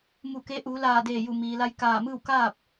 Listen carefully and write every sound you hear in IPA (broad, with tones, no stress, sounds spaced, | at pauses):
m u˧˩ k e˧˥ ʔ uː˩˧ l aː˧˩ d eː˧˩ j u˧˩ m iː˩ l a˧ j k aː˧˩ m ɯː˥˨ w k aː˥˨ p̚